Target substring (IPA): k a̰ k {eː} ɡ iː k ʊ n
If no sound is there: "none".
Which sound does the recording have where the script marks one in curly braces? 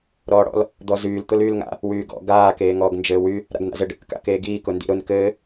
eː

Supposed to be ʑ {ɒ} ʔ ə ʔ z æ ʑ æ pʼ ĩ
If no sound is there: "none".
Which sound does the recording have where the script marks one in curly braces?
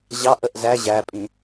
ɑ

